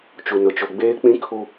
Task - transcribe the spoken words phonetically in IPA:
t͡ʃ u˨ n ʊ˨ t͡ʃ o˨ ɡ͡b eː˦ k͡p ĩ˦ kʰ u˦

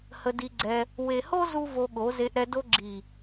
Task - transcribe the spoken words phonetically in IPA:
h ə˧ d i˧ ɡ͡ǀ ɛ˧ | w e˨ h o˦ z u˦ v o˧ ɠ o˨˦ z e˧ ʔ ɾ ɛ˧ d o˧ ɡ͡ǁ i˨

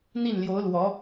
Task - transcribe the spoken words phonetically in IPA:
n̪ i˥˩ n l j o˧˥ ʊ̯ l w ɔ˧˥

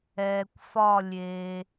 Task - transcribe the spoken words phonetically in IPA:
ɛː˨ kʷ f ɒ˥˧ lʲ eː˨

